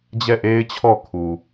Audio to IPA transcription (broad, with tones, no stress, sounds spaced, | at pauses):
d͡ʑ ɛ˦˨ ʔ e˦ ɪ̯ t͡ɕʰ ɔ˦˨ kʰ u˨